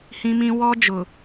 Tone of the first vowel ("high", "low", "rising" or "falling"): high